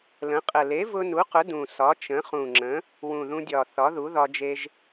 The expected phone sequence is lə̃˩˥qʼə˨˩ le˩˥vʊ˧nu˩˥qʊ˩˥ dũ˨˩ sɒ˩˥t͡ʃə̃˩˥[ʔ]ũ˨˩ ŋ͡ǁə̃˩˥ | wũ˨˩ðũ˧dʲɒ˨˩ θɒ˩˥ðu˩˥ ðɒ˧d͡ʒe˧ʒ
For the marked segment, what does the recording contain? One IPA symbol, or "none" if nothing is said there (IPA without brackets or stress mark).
χ